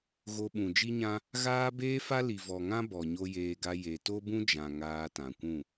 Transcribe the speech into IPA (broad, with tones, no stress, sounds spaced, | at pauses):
ɣ o˧ ɓ ũ˨ d͡ʒ i˦ ɲ ã˦ | ɣ aː˦ b eː˦ f a˦ l i˨ v ɔ˨ ŋ ã˦ b ɔ˨ ɲ o˧ j eː˧ ɡ a˧ j e˨ t o˦ b ũ˦ d͡ʒ ã˨ ŋ aː˧ t ã˨ kʷ ũ˦˨